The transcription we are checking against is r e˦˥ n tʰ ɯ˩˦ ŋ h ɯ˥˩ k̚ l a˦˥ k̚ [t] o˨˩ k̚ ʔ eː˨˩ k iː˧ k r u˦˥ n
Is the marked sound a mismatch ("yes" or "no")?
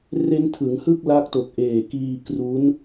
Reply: no